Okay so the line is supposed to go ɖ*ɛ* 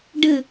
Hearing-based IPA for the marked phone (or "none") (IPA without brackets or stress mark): ɘ